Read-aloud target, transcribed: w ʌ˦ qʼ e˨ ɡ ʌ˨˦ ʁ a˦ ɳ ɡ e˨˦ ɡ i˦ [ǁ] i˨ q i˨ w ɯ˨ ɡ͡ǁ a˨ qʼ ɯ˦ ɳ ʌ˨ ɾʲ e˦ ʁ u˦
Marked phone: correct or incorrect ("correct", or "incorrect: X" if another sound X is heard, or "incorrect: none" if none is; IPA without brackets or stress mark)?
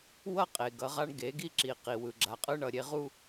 correct